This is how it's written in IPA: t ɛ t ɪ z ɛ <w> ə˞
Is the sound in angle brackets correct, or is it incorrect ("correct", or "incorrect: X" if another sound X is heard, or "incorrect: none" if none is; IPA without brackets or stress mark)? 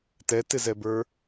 incorrect: b